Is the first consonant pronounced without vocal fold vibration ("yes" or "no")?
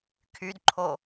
yes